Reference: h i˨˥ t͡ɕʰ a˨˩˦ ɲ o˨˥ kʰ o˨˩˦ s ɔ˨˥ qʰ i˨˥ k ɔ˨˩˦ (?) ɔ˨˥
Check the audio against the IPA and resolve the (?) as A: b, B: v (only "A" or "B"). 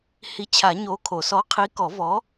B